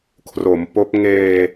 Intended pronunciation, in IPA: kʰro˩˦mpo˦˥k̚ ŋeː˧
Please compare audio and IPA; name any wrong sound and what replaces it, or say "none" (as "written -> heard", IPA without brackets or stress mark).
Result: none